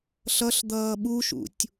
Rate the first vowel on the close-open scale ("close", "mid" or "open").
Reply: mid